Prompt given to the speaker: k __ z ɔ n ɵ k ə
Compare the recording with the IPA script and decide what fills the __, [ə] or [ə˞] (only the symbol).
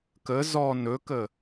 ə